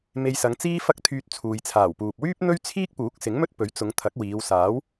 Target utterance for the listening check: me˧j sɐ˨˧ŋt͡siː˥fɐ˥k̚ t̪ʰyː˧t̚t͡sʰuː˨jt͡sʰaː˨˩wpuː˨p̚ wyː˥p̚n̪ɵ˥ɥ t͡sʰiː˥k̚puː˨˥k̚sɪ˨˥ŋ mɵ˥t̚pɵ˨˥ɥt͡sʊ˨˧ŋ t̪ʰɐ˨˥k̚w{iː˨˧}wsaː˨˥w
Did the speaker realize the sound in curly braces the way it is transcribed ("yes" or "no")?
yes